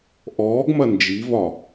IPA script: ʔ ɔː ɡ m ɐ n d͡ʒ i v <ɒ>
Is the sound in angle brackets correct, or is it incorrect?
correct